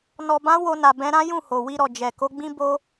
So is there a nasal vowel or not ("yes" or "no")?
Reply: yes